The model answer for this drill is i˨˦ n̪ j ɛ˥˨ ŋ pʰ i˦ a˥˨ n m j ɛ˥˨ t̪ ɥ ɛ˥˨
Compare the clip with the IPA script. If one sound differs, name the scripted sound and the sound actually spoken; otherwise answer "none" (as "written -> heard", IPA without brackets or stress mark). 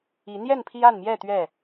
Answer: ŋ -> n